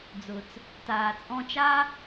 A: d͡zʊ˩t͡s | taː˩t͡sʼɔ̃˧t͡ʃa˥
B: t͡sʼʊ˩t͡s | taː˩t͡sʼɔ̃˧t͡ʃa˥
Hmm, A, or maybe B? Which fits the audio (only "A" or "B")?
A